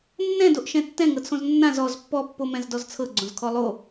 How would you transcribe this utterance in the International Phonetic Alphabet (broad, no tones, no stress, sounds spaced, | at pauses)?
nː ɛ̃ d o ʔ ʃ ɛ̃ tː ɛ̃ ŋ ɤ t͡sʰ õ z nː ã z ɔ z pː ɔ pː o m ɛ̃ z d ɔ z t͡sʰ ɤ ɡ͡ǀ õ z kʰ ɔ lˠ o